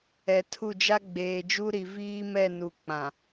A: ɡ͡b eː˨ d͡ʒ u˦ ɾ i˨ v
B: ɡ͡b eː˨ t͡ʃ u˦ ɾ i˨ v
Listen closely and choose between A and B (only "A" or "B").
A